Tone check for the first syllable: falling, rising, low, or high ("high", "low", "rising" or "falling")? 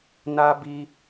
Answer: high